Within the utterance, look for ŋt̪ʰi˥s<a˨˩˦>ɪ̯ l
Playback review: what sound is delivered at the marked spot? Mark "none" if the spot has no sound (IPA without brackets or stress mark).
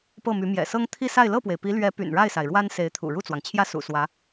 a˥˧